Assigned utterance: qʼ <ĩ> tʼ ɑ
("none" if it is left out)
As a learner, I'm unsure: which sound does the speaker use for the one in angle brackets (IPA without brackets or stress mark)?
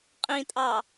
ĩ